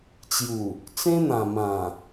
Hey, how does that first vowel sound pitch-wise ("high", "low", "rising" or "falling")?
low